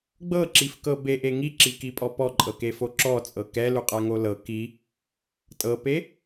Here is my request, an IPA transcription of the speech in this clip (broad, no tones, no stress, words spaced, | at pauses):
ɡ͡bɤǁifkɤ beʔe ŋiǁikipʼɔ pɔǃʼɤkefo ǁɔt͡sʼɤ kɛluqʼaŋo lɤ ki | tʼɤpe